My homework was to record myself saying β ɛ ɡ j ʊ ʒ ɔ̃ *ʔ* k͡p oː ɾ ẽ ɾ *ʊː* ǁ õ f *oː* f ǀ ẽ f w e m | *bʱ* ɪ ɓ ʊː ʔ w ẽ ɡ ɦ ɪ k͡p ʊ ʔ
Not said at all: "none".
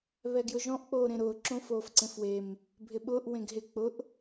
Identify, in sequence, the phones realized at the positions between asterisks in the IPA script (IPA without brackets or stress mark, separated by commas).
ʔ, ʊː, oː, bʱ